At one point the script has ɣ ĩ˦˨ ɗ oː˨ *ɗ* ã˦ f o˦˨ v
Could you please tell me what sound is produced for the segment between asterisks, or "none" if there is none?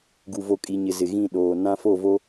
n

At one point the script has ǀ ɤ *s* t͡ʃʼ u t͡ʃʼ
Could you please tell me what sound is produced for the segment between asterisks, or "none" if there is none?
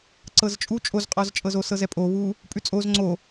z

